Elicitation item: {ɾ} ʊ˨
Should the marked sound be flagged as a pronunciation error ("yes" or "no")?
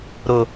no